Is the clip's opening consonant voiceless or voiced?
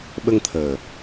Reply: voiced